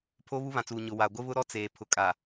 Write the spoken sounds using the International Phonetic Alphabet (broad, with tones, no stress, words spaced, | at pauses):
pʰo˦βu˦βã˨t͡suː˨ ɲʊ˨wa˨ɡʷɪ˦βʊ˦ ɾɔ˦t͡seː˨ pʰʊ˨kʼa˨